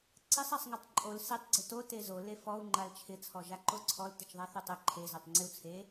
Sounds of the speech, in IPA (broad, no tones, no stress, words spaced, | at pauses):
ǀɪsˤasˤŋɔtˤ ǃʼol setˤɡ͡ǀʊ to tezo lefɔu̯ ŋ͡ǃalt͡ʃʰɪt͡sʰɔ ʒaǃoǀʰɔl tɪt͡ʃðˤaθotˤɪ ǃʰezotˤ ŋ͡ǀɪu̯t͡sʰe